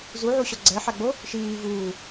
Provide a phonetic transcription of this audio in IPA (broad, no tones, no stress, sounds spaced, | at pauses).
z u ʕ u ɕ ɔ ɡ͡ǀ ɛ ħ a ɡ͡b o | ʃ iː v uː